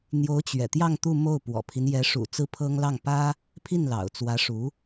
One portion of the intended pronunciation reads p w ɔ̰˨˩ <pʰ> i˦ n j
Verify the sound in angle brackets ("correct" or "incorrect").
correct